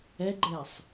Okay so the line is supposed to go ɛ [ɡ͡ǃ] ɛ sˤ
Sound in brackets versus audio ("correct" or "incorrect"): correct